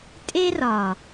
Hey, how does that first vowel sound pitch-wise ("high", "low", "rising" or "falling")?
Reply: high